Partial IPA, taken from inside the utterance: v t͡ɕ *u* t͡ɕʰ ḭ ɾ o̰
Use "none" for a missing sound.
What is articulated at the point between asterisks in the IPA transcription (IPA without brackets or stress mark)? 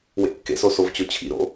o